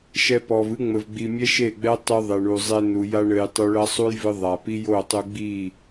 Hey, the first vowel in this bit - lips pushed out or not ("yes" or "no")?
no